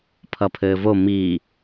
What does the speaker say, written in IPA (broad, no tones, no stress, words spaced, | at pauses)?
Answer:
pʰʌpʰɘːvo mi